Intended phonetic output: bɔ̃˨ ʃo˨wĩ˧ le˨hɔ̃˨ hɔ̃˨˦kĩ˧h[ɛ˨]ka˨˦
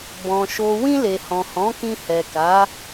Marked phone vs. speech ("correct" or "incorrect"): correct